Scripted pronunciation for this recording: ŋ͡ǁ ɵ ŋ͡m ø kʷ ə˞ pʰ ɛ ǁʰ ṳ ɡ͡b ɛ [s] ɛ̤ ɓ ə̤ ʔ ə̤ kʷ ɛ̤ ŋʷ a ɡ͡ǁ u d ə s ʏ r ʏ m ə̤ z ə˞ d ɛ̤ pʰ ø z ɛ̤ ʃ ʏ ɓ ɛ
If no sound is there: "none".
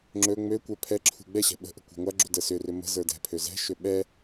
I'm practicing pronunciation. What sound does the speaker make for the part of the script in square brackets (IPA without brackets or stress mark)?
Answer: ɕ